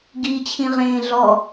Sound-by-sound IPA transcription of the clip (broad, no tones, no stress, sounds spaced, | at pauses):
ɡ i t͡ɕʰ ĩ ʁ ẽː ɮ ɔ